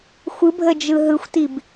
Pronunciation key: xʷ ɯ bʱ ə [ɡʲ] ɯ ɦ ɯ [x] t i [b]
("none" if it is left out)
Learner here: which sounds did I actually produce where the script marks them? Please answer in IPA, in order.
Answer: d͡ʒ, xʷ, b

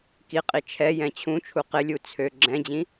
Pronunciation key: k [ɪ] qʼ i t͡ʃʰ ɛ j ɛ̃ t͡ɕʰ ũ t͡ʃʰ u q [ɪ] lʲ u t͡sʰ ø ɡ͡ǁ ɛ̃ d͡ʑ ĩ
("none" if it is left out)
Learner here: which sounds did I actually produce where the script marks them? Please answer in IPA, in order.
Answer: i, ɪ

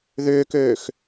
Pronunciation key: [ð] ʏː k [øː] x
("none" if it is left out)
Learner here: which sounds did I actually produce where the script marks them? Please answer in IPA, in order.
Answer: ð, øː

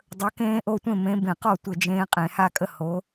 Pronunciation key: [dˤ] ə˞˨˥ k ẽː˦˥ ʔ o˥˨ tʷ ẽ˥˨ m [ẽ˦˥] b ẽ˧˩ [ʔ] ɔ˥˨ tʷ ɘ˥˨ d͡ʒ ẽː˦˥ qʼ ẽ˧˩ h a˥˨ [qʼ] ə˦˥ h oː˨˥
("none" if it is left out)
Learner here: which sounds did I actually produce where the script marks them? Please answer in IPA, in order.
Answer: dˤ, ẽ˨˥, q, kʼ

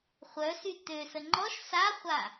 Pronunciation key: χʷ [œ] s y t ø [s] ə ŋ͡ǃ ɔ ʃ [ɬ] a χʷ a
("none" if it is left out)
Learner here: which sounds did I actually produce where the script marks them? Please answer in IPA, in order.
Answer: œ, s, s

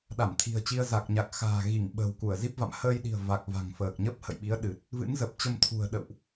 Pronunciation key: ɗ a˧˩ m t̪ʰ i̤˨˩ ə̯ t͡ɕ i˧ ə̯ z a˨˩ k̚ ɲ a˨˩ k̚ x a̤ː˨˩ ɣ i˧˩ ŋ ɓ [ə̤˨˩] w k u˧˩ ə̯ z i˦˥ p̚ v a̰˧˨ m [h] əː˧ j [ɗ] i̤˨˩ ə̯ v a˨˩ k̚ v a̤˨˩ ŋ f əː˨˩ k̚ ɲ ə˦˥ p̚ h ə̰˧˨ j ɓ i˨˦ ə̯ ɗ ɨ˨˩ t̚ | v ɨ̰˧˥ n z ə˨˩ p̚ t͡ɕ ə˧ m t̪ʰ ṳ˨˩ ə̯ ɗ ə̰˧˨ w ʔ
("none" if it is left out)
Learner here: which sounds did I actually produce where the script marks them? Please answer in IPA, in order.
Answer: ə̤˨˩, h, ɗ

